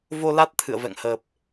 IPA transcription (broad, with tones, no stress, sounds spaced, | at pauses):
v o˧ l a˦˥ t̚ t̪ʰ ɨ̰˧˨ ə̯ v ɛ̰˧˨ ŋ h əː˨˩ p̚